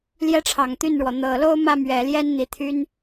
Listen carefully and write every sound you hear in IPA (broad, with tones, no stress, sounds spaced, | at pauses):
l j ɛ˥ ʈ͡ʂʰ ɑ˨˩ ŋ t̪ y˥˩ n ɻ w ɔ˩ n̪ ɤ˨˩ l o˥ ʊ̯ m ä˥˩ m ɥ ɛ˨˩ l j ɛ˥ n n̪ i˨˩ t̪ʰ y˥ n